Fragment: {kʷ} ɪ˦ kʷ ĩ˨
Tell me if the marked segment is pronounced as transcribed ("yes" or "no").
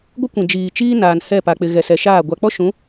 no